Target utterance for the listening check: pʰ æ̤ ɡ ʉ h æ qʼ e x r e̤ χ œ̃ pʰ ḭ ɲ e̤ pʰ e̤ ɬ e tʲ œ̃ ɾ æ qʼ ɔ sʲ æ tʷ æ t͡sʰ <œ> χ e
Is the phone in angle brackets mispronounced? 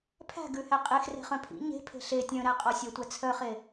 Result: no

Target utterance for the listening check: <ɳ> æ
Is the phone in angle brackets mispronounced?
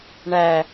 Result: no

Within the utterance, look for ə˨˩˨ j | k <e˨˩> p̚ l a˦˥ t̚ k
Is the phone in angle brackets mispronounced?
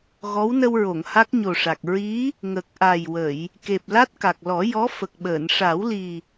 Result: no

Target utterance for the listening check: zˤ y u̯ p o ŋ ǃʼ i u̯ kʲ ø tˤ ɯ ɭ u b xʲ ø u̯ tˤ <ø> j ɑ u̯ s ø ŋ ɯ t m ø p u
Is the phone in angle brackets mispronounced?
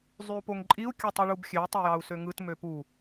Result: no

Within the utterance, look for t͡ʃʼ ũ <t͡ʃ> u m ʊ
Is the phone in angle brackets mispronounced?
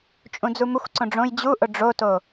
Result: yes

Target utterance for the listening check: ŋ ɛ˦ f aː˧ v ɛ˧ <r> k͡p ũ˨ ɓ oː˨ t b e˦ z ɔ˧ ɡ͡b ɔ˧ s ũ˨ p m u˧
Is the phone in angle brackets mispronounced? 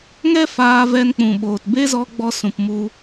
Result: yes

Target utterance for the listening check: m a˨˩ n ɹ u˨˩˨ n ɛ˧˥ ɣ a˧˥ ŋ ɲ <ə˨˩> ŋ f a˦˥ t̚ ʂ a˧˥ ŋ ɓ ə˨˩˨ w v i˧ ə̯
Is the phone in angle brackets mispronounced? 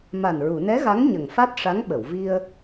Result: no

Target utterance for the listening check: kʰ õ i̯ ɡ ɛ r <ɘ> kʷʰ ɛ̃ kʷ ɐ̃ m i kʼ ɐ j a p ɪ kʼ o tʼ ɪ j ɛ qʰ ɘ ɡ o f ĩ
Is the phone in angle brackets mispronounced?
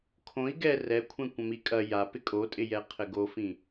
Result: yes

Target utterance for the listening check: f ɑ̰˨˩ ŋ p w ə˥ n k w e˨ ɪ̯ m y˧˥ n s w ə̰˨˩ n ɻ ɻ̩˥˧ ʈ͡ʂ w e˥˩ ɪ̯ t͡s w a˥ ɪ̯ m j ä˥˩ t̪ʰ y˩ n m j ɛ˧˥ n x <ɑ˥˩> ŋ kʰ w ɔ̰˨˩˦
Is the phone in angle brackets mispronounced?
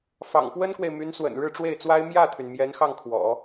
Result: no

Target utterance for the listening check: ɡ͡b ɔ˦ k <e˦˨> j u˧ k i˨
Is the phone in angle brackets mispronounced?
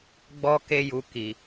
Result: yes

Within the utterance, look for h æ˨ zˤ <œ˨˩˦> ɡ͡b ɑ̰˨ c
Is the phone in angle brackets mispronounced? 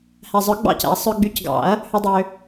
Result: no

